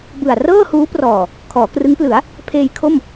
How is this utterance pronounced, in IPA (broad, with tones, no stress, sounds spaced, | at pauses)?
b ɯ˨˩ a̯ r ɤː˥˩ h uː˦˥ p r ɔː˨˩ | kʰ ɔː˩˦ k r ɯ˦˥ ŋ p l ɯ˩˦ a̯ | pʰ eː˧ j kʰ o˥˩ m